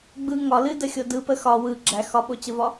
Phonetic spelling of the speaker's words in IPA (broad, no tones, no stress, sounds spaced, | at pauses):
ɡ͡b ɯ ŋ ɒ l ɨ d ə xʲ o d ɯ p ə x ɒ w ɯ ɡ͡ǁ æ x ɒ ɓ o t͡ɕ ə v ɒ